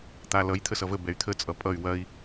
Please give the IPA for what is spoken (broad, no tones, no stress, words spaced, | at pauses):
t̪alʌj t̪ʰəsʌvə bɛy̯t̪ʰə t͡sʼʌpʼʌy̯ wɐi̯